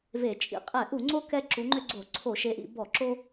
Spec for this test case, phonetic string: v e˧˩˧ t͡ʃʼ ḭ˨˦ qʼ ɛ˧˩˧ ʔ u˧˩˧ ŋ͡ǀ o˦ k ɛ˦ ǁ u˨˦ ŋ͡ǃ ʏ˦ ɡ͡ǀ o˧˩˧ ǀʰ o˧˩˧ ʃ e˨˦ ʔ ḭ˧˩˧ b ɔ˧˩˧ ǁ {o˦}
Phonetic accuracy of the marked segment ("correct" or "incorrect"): correct